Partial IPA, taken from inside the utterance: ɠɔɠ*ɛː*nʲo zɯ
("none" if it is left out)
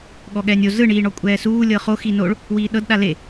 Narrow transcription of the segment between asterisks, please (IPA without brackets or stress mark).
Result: ɛː